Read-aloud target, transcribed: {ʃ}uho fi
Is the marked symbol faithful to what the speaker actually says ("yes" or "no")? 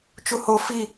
no